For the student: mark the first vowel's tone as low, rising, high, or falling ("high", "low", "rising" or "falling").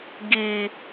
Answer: high